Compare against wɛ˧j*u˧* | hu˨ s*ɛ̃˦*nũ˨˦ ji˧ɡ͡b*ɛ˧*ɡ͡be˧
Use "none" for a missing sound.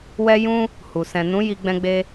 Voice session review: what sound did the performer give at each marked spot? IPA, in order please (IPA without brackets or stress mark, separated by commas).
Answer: ũ˧, ɛ̃˨, ɛ̃˧